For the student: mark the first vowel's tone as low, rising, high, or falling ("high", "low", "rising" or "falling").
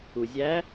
low